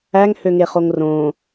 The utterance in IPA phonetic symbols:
æ ŋ h ø ŋ e χ o ŋ r õ

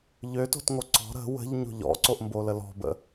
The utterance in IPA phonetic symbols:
ʎ ø t o̤ t ŋ o ǀ ɔ̤ ɾ ə̤ w ə̤ ʎ ɲ o̤ ʎ ɔ̰ ǀ o ʔ m b o l ə l ɔ̤ b ə̰

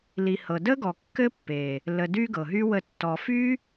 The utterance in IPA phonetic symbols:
l i˨ h ɤ˨ d ə˦ ɡ ɔ˨ kː ɘ˦ pː e˨ | l ə˨ d y˦ ɡ ɤ˨ ɦ y˦ w ə˦˨ tː ɔ˧ f y˦

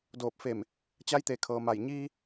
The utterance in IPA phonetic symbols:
d oː˧˩ p̚ f e˧˩ m | t͡ɕ a˧˥ j t̪ e˩˧ kʰ ɤː˩ m a˧˩ j ɲ iː˧

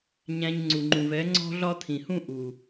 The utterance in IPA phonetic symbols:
ɲ æ̃˧ ɲ ŋ͡ǀ u˨ ŋ͡ǃ ũ˨ v ɛ˨˦ ŋ͡ǀ ɔ̤˦ ɮ ɒ˦ t̪ʰ ĩ˨ h ũ˦ ʔ u˨

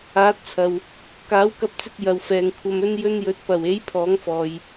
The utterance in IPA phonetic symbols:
aː˨˥ t̚ t͡sʰ ɐ˨ w | k aː˨˥ w k ɐ˧ p̚ t͡s ɪ˧ k̚ j ɐ˨ w f ɛː˨ ŋ kʷʰ ɐ˧ m ɵ˥ n j ɵ˥ n j ɵ˧ t̚ p ɐ˨˩ w e˨˥ j pʰ ɔː˨˥ ŋ f ɔː˨ j

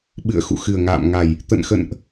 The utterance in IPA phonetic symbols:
ɓ ɨ̰˧˨ ə̯ x ṵ˧˨ x ɨ˨˩ ə̯ ŋ a̰ː˧˨ m ŋ a˨˩ j | t̪ ə̰˧˨ n x ə̰˧˨ n ʔ

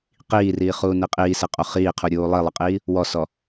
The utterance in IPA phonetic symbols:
q iː r iː χ uː n i qʼ iː s ɪ qʼ o χ iː qʰ u ɾʲ uː lˠ i lˠ ɪ qʼ iː | w ɔ s ɔ

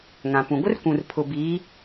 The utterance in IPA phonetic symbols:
ŋ ã˨ p ũ˨ ɡʷ ɪ˦ r kʷ ũ˨ r pʰ ʊ˨ b iː˨˦

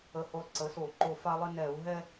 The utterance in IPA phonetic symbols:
ə˧˩ h o˧˩ lˠ ǀ ə˩˥ s o˧˩˧ ǃ o˧˩ f a˦ lˠ ɪ˦ n ɛ˧˩˧ u̯ ɦ ɛ˦

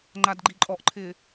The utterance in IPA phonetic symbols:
ŋ͡ǃ a d ɡ͡ǃ i ǃʼ ɔ ʔ ǃʰ ɪː

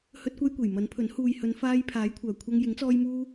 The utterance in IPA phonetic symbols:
h ɵ˥ t̚ kʷ ɐ˥ j kʷ e˨˩ j m ɐ˨˥ n pʰ ɵ˨˥ n h uː˨ j h ɵ˨˧ n f aː˧ j pʰ aː˨˥ j kʷʰ œː˨˩ kʷʰ ɐ˧ ŋ j ɪ˨˥ ŋ t͡s ɔː˧ j m uː˧

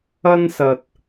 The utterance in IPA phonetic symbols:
ɐ˥ n s ɐ˨ t̚

